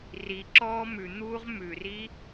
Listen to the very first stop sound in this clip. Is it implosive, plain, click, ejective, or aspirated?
click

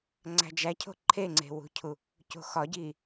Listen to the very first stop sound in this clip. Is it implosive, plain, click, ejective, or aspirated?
click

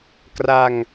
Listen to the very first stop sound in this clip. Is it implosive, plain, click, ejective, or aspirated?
plain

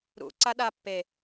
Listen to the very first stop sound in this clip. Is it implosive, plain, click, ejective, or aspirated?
click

